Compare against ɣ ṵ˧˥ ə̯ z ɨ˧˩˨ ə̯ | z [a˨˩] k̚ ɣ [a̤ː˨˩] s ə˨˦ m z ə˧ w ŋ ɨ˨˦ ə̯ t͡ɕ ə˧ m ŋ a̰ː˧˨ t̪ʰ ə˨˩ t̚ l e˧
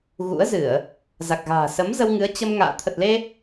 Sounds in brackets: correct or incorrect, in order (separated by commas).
correct, correct